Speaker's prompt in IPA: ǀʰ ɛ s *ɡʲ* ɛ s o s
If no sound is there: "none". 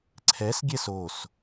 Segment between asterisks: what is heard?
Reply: ɡʲ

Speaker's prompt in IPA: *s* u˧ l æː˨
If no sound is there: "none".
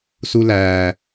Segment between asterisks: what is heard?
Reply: s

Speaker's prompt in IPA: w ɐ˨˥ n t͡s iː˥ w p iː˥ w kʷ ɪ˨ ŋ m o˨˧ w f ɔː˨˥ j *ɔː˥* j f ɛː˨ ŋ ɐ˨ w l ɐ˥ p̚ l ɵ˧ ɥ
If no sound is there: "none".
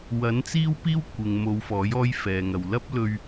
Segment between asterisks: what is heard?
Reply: ɔː˥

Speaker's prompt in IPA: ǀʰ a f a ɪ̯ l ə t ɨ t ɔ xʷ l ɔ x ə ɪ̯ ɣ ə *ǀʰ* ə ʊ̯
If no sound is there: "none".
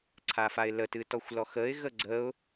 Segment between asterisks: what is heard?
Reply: ɡ͡ǀ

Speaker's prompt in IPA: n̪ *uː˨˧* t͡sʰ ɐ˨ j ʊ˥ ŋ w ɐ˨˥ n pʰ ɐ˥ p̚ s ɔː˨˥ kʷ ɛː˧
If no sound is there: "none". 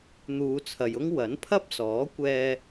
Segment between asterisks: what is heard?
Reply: uː˨˧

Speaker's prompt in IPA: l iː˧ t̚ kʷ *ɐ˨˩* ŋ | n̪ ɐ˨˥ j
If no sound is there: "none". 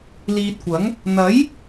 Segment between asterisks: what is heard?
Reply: ɐ˨˥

